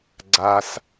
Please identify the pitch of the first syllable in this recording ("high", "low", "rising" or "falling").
low